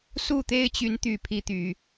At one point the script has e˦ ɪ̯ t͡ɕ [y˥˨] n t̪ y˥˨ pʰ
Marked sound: incorrect: y˨˦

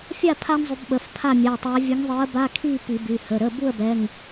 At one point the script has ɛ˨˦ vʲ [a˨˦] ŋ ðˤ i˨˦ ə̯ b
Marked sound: incorrect: ə˨˦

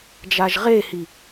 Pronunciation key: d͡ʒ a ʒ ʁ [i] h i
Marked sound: incorrect: e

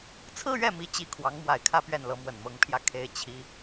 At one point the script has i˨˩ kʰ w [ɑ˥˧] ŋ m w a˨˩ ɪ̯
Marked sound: incorrect: ɑ˧˥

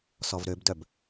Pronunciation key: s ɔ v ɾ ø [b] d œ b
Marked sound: correct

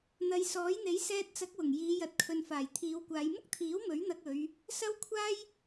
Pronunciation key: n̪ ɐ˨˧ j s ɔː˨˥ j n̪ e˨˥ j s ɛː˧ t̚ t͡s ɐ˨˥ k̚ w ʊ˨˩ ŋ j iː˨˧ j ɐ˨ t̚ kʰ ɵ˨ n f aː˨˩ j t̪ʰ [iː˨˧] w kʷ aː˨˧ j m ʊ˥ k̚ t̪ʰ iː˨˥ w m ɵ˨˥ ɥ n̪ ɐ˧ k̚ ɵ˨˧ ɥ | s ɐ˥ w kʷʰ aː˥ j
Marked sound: correct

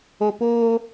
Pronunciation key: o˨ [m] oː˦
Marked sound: incorrect: p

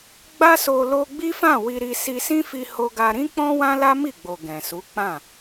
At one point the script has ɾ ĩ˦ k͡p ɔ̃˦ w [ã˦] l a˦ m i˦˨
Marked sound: correct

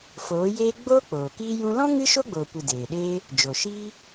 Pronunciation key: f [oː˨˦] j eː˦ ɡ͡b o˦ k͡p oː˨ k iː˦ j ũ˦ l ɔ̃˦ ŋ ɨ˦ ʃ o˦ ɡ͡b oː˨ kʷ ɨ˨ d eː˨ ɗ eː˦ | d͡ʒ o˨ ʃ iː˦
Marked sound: correct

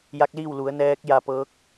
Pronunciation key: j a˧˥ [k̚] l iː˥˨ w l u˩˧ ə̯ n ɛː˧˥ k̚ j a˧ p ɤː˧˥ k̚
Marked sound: correct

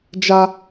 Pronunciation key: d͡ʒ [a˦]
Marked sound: correct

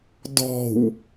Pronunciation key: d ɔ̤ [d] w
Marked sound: incorrect: none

